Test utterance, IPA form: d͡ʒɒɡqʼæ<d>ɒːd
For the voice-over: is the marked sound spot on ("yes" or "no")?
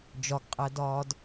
yes